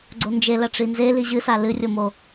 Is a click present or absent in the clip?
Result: present